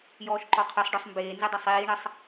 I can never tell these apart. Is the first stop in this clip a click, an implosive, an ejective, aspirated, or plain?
click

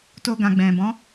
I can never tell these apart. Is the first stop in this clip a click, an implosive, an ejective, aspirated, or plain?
plain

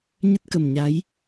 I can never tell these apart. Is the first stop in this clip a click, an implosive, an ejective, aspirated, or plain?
plain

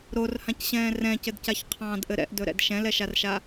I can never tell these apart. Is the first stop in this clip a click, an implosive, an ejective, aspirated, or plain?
plain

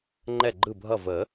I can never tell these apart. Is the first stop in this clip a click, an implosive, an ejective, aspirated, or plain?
click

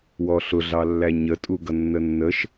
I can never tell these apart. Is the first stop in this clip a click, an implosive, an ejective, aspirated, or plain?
ejective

